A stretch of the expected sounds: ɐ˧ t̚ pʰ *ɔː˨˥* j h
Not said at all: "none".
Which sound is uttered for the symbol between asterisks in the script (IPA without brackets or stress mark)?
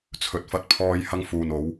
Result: ɔː˧